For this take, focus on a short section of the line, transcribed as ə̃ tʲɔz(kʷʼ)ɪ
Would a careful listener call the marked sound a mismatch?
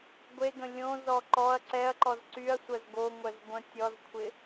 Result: yes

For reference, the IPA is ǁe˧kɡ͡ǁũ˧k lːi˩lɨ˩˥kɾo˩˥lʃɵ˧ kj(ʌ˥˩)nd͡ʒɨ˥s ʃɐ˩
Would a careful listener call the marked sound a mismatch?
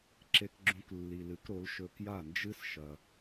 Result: yes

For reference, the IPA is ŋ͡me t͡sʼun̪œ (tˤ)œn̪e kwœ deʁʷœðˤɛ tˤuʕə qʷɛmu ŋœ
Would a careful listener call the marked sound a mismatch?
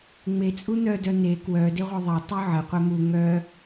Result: yes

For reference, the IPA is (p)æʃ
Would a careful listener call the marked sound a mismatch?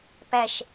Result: no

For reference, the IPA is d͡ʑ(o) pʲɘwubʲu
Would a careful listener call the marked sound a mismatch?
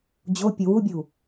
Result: no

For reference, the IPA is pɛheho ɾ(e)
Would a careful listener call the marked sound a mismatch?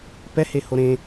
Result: yes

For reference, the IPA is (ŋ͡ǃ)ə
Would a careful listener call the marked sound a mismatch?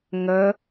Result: yes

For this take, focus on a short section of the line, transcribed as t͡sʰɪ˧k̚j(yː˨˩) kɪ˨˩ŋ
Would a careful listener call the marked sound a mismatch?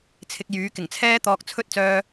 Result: yes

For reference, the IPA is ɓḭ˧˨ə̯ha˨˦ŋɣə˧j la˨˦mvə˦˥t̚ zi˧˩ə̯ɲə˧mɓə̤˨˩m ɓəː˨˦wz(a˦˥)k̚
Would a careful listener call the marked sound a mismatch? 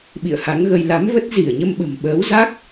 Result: no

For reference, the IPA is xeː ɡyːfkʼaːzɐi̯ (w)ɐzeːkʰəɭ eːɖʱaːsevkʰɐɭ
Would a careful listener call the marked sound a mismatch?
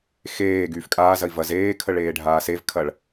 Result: yes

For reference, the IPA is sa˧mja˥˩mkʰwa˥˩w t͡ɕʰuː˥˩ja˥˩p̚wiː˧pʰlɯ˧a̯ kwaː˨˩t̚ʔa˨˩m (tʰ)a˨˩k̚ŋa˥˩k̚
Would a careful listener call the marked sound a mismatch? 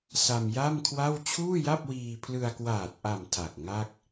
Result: no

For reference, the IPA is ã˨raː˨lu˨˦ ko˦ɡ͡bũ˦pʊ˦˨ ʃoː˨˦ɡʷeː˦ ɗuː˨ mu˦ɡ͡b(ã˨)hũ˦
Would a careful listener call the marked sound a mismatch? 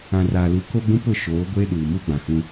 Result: no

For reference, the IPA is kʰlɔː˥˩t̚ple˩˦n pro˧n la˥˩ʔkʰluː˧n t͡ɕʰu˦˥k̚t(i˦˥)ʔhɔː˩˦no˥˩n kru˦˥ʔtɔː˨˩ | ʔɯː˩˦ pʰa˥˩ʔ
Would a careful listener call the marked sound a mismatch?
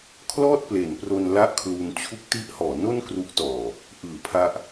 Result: no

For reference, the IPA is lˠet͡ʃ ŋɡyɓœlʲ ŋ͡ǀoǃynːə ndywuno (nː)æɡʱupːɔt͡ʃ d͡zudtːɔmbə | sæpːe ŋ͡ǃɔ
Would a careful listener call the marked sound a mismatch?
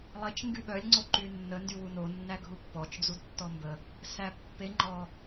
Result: no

